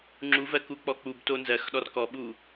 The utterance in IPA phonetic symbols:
ŋ͡ǁ u v ɜ k u k͡p ɔ k͡p u b t o n z ɜ x ɗ ɔ r k ɔ ɓ u

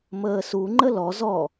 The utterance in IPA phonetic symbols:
m əː s u ŋ͡ǃ ə l ɔ z ɔ

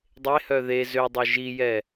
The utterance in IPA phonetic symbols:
dˤ e h œ ð e z ø dˤ o ʒ i j ɛ

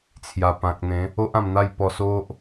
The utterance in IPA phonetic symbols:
t͡sʰ j a˨˩ p ã˨ k̚ n̪ ẽ˨˦ | o˦ ʔ ã˧ m n̪ a˥˧ j p ɔ˧ s o˦ ʔ

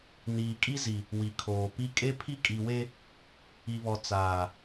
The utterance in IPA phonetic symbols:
n iː˨ kʼ i˦ z i˨ | w i˨ kʰ oː˨ p i˦ kʼ e˦ pʰ i˦ kʼ i˨ w e˦ | i˨ β ɔ˨ t͡s aː˨

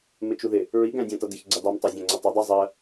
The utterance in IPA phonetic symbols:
m ɪ t͡ʃ u ð ɪ | ɹ i ɡ æ̃ dʲ æ̃ t ʌ d ɪ ç ɡ͡ǀ ɛ dˤ u m tˤ ɑ zʲ æ̃ ŋ͡ǀ ə tˤ ɪ dˤ i zˤ ɜ

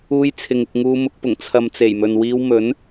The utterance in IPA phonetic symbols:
uː˧ j t͡sʰ ɪ˨˧ ŋ ɪ˨ k̚ ŋ uː˧ m ʊ˨˥ k̚ p ʊ˨˩ ŋ t͡sʰ ɐ˨ m t͡s e˨˩ j m ɵ˨ n w iː˧ w m ɵ˨˥ n

